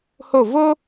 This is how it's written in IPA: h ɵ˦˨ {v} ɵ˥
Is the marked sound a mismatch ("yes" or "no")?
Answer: no